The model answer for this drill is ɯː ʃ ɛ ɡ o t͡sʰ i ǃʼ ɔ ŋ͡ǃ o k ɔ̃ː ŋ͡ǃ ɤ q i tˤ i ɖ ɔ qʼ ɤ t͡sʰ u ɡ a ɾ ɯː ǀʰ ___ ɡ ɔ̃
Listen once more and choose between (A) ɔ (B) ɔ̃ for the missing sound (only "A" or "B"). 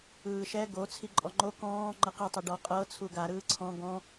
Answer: B